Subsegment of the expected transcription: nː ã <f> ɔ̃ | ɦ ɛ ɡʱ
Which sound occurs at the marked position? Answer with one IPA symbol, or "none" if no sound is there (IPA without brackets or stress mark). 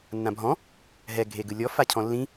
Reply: bʱ